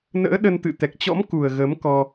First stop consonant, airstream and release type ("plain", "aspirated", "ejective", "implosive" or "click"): implosive